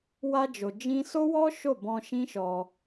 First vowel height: low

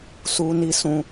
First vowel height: high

